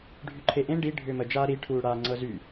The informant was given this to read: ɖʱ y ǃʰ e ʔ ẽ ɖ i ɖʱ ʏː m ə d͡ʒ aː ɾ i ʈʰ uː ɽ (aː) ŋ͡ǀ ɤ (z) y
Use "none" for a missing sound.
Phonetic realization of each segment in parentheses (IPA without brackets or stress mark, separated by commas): aː, z